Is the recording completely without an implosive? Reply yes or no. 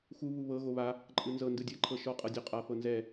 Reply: yes